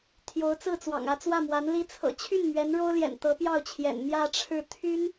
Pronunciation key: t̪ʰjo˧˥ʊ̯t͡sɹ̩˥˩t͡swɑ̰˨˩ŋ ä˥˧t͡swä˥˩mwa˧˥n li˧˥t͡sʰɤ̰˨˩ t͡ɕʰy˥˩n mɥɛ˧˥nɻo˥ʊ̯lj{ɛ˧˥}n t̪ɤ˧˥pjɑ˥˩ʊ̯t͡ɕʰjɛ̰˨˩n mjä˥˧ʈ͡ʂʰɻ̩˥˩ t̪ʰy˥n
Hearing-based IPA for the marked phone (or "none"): ɛ̰˨˩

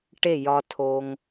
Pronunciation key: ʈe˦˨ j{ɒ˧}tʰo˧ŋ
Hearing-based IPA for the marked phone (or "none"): ɒ˧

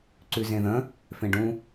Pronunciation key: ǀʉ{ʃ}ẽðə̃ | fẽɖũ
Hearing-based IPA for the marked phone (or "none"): z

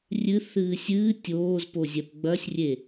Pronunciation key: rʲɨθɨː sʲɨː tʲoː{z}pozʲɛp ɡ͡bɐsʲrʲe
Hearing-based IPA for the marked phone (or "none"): z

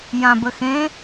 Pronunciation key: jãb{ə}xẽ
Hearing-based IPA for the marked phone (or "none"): ə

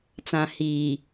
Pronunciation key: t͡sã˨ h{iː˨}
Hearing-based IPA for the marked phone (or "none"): iː˨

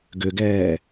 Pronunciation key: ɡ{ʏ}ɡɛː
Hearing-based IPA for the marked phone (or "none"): ʏ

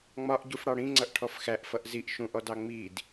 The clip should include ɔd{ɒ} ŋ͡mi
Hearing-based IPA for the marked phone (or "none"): ɑ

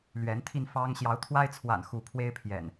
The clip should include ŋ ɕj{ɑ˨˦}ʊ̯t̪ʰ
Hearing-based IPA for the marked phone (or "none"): ɑ˨˦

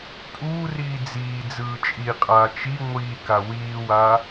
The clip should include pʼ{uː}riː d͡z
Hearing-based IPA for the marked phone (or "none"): uː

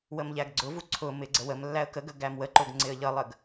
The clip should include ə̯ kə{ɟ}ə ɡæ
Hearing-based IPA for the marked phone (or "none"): ɡ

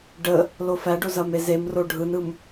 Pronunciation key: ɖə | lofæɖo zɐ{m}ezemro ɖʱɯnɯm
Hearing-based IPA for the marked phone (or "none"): m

